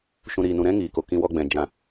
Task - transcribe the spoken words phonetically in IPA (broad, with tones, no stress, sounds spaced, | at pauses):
ʃ ũ˨ ɾ iː˨ n ũ˨ ɾ ɛ̃˦ ŋ iː˨ k o˨ k ĩ˧ w ɔ˧ ɡ͡b ɛ̃˨ d͡ʒ ã˨